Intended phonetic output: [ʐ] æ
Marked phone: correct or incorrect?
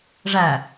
correct